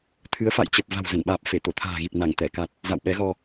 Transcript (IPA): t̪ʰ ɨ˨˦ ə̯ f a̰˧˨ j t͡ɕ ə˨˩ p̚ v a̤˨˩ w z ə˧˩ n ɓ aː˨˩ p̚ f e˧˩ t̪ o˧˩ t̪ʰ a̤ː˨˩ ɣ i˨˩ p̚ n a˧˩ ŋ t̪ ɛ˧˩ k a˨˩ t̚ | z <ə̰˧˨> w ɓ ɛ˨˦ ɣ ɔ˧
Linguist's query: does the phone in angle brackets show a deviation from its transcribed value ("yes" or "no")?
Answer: yes